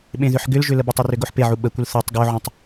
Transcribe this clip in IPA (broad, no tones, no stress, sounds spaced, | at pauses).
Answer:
ɓ ẽ ð ʏ ħ ɡ ʏ l ʒ ʏ l ə b ʏ tˤ u r ʏ ɡ o ħ p e ʕ u ɓ ə kʷ ə l θ o tˤ ɡ o ʕ ũ tˤ